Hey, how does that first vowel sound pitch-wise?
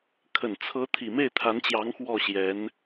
low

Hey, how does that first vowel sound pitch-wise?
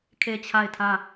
falling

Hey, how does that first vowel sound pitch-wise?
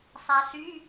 low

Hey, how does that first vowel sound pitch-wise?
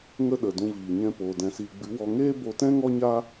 high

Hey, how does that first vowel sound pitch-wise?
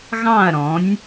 falling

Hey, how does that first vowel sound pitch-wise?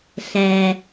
low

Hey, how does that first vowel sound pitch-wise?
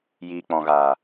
low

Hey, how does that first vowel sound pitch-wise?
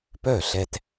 falling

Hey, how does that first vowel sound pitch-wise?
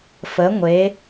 rising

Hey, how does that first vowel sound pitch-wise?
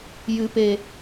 low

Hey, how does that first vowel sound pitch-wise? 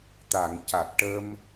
low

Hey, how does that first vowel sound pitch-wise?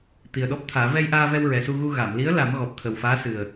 low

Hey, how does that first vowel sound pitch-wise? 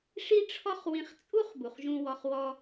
high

